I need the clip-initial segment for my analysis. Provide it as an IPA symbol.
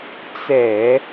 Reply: t͡s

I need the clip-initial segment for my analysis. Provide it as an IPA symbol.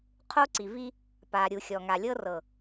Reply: qʰ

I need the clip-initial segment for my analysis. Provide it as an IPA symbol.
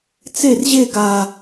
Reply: t͡s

